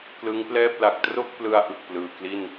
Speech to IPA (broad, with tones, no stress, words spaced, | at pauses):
klɯ˦˥ŋplɛː˥˩p̚ la˨˩k̚ tro˥˩k̚plɯ˧a̯ ʔɯ˨˩k̚plɯː˨˩ kli˥˩n